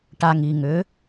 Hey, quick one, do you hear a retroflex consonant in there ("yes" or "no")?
yes